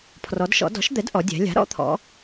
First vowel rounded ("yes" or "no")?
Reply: yes